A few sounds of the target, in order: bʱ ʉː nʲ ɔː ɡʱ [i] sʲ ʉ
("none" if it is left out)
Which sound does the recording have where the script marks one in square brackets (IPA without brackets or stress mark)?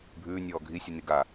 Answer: i